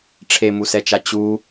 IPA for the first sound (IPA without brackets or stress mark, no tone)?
ʈ͡ʂʰ